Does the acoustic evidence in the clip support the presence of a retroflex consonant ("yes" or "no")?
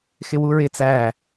no